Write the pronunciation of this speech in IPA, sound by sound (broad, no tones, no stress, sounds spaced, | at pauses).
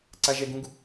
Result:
ǀ a ʒ ɛ ɡ ũ ɡ